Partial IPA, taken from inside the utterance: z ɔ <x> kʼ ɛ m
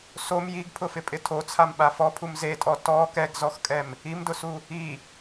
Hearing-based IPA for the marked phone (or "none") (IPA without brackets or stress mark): x